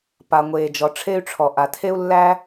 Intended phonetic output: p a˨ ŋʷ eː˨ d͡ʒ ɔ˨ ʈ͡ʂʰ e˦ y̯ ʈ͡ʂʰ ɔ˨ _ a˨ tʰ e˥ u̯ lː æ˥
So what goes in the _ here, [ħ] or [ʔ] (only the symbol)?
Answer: ʔ